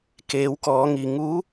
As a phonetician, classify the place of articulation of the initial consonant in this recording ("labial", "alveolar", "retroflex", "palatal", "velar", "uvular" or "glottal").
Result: velar